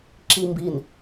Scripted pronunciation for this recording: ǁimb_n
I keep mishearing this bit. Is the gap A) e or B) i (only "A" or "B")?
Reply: B